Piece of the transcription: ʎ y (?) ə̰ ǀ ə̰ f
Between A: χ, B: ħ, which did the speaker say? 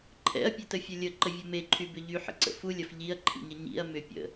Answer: B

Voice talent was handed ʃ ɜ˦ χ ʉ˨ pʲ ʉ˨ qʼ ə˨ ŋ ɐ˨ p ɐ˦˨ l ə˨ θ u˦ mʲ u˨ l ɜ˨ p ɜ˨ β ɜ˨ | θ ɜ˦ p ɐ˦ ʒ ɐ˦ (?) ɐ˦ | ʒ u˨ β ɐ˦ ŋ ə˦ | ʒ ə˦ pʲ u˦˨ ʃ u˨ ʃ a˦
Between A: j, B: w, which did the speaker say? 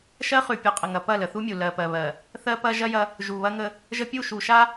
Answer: A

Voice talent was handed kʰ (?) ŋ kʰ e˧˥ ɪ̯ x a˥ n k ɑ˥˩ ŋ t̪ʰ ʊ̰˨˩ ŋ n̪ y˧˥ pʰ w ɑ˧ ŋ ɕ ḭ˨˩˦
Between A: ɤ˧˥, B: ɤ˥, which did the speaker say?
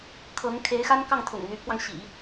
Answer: A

